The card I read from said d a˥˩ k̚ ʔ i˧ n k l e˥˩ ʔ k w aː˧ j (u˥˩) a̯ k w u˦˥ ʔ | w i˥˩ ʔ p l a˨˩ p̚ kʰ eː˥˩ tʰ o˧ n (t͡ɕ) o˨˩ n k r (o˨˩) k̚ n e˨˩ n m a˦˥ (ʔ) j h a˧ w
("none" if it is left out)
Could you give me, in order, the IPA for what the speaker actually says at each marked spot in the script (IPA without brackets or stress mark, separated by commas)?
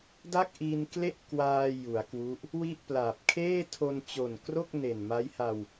u˩˦, t͡ɕ, o˥˩, none